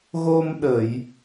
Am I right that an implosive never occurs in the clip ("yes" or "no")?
no